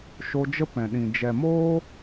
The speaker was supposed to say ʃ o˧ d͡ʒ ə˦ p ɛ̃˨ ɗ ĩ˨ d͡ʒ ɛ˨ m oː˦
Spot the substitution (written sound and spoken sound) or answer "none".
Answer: none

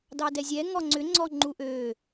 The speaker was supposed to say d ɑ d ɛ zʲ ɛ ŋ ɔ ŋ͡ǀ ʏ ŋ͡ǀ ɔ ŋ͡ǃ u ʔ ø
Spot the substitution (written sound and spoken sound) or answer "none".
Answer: none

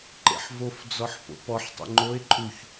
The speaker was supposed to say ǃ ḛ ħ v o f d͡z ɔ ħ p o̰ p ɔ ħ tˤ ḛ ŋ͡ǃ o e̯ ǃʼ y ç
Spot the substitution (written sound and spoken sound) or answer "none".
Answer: y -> u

